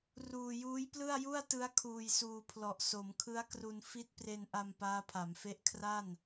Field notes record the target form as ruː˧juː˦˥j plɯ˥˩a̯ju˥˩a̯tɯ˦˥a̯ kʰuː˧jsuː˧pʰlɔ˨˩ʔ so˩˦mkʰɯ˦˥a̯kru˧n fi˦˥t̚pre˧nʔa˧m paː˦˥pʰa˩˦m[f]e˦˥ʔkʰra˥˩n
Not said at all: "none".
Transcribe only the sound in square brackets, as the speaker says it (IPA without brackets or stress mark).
f